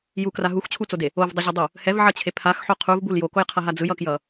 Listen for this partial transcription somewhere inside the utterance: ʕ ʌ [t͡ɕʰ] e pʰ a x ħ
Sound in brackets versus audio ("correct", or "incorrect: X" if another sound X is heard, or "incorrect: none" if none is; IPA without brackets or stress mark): correct